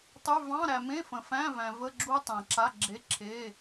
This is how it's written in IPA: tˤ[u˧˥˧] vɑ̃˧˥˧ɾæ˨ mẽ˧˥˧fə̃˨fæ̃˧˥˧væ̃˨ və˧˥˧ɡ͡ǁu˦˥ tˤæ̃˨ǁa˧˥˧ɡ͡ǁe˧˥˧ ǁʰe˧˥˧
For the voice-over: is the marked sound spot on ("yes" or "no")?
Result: no